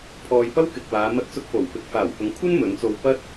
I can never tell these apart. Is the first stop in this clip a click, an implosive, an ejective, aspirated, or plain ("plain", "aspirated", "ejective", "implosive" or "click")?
aspirated